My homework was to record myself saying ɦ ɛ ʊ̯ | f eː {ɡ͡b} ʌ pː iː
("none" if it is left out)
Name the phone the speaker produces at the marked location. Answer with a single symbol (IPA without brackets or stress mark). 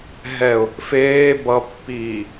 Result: b